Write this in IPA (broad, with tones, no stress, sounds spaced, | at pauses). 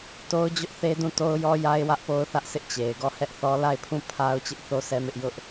t o˦ ʊ̯ d͡ʑ ʊ˦ ʔ θ e˦ d ũ˦˨ t o˦ ʊ̯ j ɔ˦ j a˦ ɪ̯ w ä˦ ʔ p o˦ ʊ̯ θ ä˦ ʔ sʰ ɪ˦ ʔ t͡ɕ e˨ ɪ̯ ɡ ɔ˦˨ h ɛ˦ ʔ θ ɔ˦ l a˦˨ ɪ̯ pʰ ũ˦˨ pʰ a˦ ʊ̯ t͡ɕ ɪ˦ ʔ θ o˦ sʰ ɛ˦ m ɪ˦ ʔ j ʊ˦ ʔ